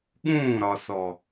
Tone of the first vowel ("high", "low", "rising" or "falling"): falling